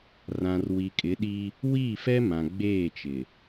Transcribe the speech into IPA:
r ã˨ r w i˨ kʼ ɪ˨˦ ɗ i˦ | w iː˦˨ f ɛ˦ m ã˨ ɡ͡b eː˦˨ t͡ʃ ɪ˨

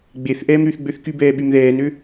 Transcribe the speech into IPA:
ɡ͡b e θ ʔ ɛː m ɾ y θ ɡ͡b ø θ k y b ɛː ɓ y m ð ɛː n ø

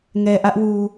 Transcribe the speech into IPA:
ŋ ɛ˨ ʔ ä˦ ʔ w u˨

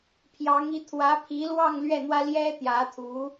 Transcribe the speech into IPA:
pʰ j ɑ˧˥ ŋ i˧˥ t̪ʰ w ä˧˥ pʰ i˧˥ l w ɑ˥˧ ŋ l ɥ ɛ˥˩ n̪ w ä˥ l j ɛ˥ t̪ j ä˧˥ t̪ʰ u˧˥

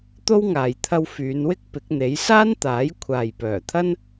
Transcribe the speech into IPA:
t̪ o˥ w ŋ aː˨ j t̪ʰ ɐ˧ w f yː˨˧ n w ɪ˥ k̚ p ɪ˨˥ k̚ n̪ e˨˥ j s aː˥ n t̪ aː˨˥ j kʷʰ aː˨ j p œː˨˩ t̪ʰ ɐ˥ n

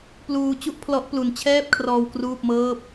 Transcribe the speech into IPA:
p l uː˧ t͡ɕ u˥˩ ʔ pʰ l ɔ˦˥ ʔ p l u˧ n t͡ɕʰ ɛː˥˩ p̚ kʰ r ɔː˧ w k r uː˥˩ p̚ m ɤː˥˩ p̚

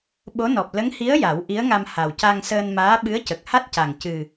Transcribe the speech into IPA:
ɓ o˧˥ n ɔ˨˩ p̚ l ə˧˥ ŋ h i˧˥ ə̯ j a˨˩˦ w ʔ i˧˥ ə̯ ŋ a˧ m h a˨˩ w c a˧ ŋ s əː˧ n m aː˧˥ ɓ ɨ˧˥ ə̯ c ə˨˩ k̚ h a˦˥ t̚ c a˨˩ ŋ c ɨ˨˩

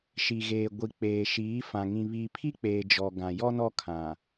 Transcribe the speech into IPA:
ʃ i˨ ɣ eː˨ ɡʷ i˨ k͡p eː˨ ʃ iː˨˦ f ã˨ ŋ ĩ˨ β iː˨ pʰ i˦ k͡p eː˨ d͡ʒ ɔ˨ ɡ ã˨ j ɔ˦ n ɔ˦ kʰ ã˨

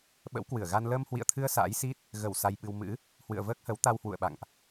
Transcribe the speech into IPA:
ɓ ə̰˧˥ w k w ɨ˧˩ ə̯ ɣ a˧ n l əː˧ m h w ḭ˧˨ ə̯ t̪ʰ ɨ˧ ə̯ s a̰ː˧˥ j s i˦˥ t̚ | ɣ ə˧˩ w s a˧ j ɓ ɨ˧ w m ɨ̰˧˥ | h w ɨ̰˧˨ ə̯ v əː˦˥ k̚ h ə˨˦ w t̪ a˧ w h w ṵ˧˨ ə̯ ɓ a̰˧˨ ŋ ʔ

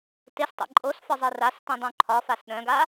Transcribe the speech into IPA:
t e s tˤ ḛ ǃʼ o s f ɒ zˤ i r a s t ĩ dˤ ũ ǃʰ ɒ f a s ɗ œ̃ ɡ a

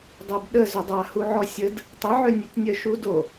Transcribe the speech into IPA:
dˤ o b ɗ ə z ʏ dˤ a h u ʕ ɔ sʲ ə d | tˤ ə ʕ ø nʲ e tʲ nʲ œ ʃ u d o

